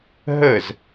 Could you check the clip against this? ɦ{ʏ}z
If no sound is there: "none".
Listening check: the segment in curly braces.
ə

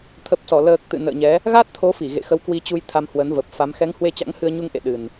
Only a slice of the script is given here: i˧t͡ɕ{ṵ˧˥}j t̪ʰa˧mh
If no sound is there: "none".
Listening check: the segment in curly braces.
u˧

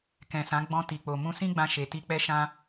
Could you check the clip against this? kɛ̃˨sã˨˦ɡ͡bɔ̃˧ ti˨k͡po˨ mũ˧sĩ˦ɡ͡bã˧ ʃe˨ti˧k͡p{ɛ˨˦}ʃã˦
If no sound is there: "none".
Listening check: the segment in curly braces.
ɛ˦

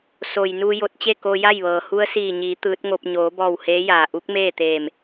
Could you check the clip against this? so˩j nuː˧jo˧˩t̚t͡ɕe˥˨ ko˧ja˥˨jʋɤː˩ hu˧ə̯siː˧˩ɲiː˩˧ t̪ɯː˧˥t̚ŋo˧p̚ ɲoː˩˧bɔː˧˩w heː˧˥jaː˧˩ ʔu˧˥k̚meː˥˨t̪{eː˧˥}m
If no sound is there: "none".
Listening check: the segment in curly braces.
eː˧˩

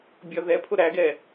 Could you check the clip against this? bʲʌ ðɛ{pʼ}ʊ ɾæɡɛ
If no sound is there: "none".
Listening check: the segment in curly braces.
pʰ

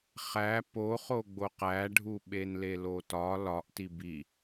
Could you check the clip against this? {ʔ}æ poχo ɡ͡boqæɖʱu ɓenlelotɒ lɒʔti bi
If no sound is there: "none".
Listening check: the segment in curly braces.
χ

